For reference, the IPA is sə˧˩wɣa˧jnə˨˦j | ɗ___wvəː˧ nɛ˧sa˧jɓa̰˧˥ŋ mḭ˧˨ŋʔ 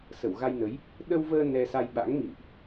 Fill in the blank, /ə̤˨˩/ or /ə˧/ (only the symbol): ə˧